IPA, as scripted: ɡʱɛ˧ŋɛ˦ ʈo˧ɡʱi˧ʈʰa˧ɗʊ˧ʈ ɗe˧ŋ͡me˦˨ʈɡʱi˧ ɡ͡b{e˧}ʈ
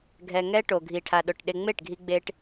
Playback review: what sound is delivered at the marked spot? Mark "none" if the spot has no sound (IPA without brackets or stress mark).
e˧